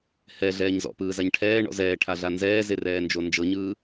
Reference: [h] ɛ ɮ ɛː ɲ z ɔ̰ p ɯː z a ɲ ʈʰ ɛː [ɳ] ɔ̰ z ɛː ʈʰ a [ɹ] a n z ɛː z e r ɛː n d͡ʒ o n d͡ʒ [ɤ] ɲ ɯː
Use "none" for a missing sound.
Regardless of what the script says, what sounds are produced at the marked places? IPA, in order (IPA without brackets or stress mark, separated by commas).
h, ɳ, ɮ, ɤ